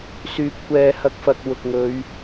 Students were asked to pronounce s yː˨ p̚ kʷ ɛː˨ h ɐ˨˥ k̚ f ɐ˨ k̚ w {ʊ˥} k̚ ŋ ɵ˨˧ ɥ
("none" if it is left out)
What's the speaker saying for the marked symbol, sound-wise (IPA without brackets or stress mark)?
ʊ˨